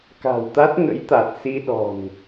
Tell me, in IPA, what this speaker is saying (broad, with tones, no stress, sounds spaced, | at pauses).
k a̤˨˩ w t̪ a˦˥ t̚ ŋ ə̰˧˥ j t̪ a˨˩ t̚ s i˧ ɗ ɔ̤˨˩ n